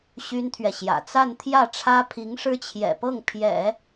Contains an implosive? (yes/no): no